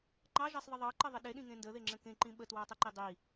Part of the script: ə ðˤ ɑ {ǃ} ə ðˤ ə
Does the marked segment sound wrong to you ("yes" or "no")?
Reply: no